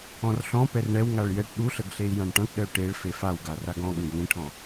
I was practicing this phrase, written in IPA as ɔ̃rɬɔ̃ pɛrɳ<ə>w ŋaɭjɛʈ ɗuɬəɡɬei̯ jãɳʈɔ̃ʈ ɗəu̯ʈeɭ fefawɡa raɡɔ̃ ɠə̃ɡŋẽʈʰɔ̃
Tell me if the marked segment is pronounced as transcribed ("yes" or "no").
no